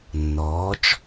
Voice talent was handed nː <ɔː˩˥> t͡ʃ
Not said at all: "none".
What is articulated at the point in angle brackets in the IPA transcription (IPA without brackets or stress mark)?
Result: ɔː˩˥